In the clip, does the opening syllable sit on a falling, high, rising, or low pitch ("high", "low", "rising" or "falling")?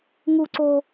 low